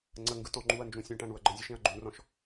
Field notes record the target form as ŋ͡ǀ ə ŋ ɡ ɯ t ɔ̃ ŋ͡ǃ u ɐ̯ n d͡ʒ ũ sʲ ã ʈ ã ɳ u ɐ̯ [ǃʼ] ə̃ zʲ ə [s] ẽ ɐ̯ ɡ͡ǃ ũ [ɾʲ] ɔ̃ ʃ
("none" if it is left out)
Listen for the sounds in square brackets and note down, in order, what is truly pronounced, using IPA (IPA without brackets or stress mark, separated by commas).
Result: ɡ͡ǃ, ʃ, r